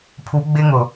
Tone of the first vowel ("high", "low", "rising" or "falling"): rising